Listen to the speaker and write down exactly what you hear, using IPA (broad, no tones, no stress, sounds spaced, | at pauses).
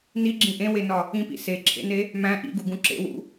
n i ɡ͡ǁ ĩ ʔ ẽ w e n ɒ | ĩ p ḭ s e ǁʰ ḛ n e | m æ̃ ʔ ḭ ɡ u ɡ ũ ǁ ḛ w ṵ